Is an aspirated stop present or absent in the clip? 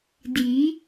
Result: absent